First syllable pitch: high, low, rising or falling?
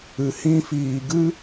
low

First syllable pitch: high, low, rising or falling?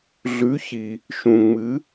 rising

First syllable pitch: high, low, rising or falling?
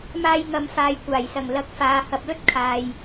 high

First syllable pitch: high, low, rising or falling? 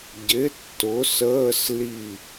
rising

